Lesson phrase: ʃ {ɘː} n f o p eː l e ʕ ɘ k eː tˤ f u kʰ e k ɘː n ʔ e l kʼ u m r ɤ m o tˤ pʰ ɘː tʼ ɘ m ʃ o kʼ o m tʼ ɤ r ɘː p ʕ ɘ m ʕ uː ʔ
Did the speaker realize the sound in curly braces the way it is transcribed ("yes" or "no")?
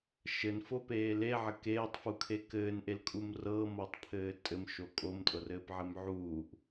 no